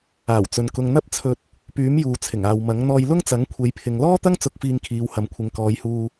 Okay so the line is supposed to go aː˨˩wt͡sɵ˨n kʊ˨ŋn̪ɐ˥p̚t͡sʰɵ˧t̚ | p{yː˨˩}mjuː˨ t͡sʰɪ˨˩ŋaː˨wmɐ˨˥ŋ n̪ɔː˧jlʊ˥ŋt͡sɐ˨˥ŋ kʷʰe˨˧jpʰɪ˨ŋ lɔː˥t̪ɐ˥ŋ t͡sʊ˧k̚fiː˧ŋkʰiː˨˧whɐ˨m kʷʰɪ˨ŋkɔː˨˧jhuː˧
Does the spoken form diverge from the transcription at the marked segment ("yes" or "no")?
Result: yes